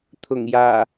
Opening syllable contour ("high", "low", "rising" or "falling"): low